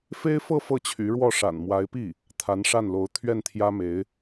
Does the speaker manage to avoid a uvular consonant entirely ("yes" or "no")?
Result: yes